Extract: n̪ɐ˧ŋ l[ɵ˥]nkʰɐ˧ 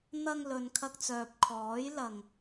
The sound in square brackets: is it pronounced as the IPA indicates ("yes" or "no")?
no